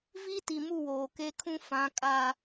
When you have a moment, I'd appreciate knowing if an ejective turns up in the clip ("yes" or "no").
yes